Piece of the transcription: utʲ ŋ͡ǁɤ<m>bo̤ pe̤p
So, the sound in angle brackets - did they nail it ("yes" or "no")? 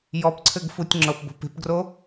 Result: no